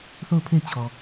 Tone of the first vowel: falling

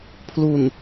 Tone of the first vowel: low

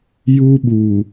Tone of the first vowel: high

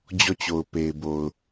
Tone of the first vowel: falling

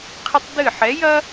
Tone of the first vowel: high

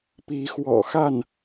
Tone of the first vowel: rising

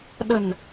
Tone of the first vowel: low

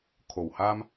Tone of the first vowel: low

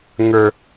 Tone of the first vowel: low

